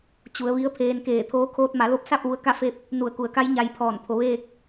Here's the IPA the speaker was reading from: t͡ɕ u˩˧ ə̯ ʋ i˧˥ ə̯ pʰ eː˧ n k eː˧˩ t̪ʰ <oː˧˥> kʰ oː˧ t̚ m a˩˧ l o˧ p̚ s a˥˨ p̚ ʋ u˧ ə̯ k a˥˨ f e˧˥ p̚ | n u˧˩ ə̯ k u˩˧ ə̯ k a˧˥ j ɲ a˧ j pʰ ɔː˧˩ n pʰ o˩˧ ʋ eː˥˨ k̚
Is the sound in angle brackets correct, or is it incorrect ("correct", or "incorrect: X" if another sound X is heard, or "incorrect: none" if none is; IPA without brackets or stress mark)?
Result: correct